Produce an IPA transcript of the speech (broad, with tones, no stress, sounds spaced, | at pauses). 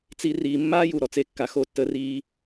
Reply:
t͡s i˧ r iː˨ mː aː˦ j u˨ ɾ ɔ˨ t͡s e˧ kː a˨ x o˧ tː ə˧ r iː˧